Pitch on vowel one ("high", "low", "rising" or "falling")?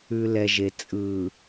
low